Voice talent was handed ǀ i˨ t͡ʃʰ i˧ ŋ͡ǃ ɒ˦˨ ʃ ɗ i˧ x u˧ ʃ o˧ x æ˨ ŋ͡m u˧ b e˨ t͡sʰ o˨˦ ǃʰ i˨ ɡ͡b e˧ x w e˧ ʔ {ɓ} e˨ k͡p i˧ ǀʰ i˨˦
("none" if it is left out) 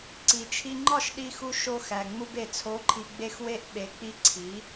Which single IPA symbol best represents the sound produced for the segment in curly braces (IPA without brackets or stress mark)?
ɓ